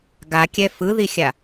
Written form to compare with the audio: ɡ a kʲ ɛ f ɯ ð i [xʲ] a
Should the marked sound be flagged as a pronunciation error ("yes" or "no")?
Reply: no